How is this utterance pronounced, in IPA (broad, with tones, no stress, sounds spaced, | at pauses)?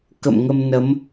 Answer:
k ə̰˧˨ m ŋ ə˧ m n ə˨˦ m